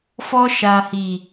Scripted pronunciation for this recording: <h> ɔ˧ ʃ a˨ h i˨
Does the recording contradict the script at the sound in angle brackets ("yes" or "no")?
yes